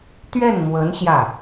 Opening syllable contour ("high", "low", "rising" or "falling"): falling